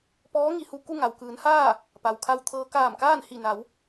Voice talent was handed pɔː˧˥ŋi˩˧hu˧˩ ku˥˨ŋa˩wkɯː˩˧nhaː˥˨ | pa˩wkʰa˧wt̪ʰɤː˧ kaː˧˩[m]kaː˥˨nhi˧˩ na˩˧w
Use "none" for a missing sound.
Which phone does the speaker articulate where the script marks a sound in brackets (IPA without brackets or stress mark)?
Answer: m